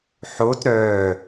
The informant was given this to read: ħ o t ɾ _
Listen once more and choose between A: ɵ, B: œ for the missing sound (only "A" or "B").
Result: B